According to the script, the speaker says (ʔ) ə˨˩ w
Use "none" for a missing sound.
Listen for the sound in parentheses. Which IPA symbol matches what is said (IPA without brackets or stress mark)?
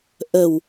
ʔ